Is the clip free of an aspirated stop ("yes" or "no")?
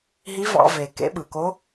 yes